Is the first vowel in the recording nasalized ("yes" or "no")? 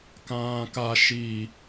yes